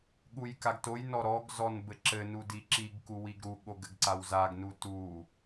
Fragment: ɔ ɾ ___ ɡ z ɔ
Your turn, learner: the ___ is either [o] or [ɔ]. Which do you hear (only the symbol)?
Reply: ɔ